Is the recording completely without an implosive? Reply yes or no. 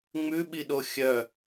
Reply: no